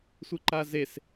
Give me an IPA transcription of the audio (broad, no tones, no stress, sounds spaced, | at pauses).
sʷ ɯ ǃ a z e s